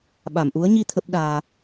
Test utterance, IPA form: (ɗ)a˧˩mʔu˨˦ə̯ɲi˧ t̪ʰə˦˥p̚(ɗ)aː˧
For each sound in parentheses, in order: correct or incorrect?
incorrect, correct

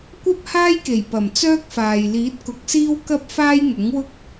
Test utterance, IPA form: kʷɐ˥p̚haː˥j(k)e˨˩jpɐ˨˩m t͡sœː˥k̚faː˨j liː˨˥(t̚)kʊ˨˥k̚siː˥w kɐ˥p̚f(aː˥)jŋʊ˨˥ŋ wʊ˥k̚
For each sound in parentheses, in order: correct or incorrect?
correct, correct, correct

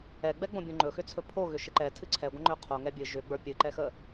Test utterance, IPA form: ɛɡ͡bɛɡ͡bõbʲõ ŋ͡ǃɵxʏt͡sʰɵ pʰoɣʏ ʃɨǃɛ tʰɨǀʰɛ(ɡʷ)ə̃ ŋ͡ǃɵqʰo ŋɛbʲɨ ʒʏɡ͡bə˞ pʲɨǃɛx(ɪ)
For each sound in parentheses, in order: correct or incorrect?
correct, incorrect

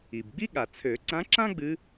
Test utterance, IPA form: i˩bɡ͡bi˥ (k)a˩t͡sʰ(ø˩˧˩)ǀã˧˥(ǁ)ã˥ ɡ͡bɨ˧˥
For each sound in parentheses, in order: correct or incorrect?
incorrect, incorrect, correct

